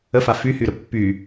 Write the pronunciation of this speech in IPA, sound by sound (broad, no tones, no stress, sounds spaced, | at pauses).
ə f a f y h y ɾ ə pː y